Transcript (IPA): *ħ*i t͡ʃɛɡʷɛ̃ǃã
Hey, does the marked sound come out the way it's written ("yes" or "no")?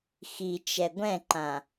no